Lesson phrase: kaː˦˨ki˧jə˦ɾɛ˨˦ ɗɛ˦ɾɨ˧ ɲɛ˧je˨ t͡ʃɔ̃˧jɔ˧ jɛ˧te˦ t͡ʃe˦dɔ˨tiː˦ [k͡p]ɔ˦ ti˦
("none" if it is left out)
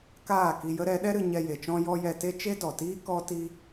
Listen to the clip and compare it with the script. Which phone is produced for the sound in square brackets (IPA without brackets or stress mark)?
k